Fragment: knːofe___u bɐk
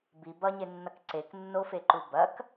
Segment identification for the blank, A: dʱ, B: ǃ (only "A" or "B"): B